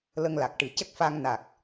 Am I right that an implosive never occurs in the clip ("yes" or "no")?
yes